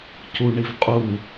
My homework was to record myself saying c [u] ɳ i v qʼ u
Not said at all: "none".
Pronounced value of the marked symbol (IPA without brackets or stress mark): u